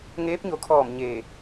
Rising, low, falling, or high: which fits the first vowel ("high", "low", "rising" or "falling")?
rising